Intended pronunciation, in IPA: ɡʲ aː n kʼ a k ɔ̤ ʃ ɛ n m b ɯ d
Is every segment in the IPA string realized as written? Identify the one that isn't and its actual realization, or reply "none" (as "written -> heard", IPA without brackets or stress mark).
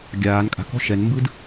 a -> a̤